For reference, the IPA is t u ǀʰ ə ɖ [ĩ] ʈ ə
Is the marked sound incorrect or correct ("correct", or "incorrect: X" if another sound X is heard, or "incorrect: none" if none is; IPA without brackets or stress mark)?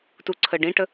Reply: correct